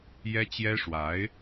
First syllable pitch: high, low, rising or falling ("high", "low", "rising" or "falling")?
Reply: high